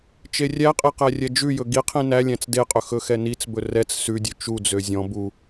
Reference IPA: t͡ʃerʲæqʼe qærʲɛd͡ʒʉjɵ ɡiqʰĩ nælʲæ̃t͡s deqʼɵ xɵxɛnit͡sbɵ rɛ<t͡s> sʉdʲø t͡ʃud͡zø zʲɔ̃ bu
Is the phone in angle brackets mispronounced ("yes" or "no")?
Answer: no